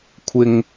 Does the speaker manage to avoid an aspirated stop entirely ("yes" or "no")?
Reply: no